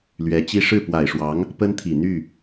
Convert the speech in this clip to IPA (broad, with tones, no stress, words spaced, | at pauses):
lɥɛ˧˥t͡ɕi˥ ʂɻ̩˥˩pwa˨˩ɪ̯ʂwɑ˧˥ŋ | pə˥nt̪ʰi˨˩ n̪y˥˩